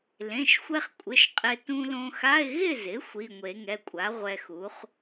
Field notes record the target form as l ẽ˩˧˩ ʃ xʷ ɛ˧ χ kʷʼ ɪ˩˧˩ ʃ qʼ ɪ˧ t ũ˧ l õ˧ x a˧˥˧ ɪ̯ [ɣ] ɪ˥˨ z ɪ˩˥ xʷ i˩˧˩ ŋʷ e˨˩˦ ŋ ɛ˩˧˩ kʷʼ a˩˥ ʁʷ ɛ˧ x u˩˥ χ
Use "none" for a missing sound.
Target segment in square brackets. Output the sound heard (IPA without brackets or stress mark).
ɣ